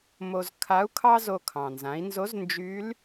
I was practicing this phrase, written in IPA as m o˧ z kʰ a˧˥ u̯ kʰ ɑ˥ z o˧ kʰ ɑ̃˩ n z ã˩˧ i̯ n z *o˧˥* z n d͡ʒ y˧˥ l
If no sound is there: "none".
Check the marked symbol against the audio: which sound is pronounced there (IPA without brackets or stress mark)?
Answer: o˧˥